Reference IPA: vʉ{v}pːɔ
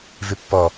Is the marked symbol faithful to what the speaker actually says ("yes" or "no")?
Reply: no